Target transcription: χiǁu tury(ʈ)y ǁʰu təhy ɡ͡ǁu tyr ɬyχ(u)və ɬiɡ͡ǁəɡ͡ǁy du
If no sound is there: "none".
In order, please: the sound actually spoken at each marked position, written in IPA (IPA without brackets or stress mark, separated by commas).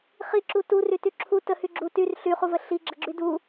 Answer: t, u